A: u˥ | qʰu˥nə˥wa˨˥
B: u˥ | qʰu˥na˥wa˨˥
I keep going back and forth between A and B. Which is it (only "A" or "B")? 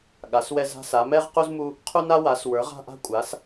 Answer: B